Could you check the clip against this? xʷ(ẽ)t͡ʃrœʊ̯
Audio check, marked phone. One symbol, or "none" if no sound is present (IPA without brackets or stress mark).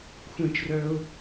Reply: ẽ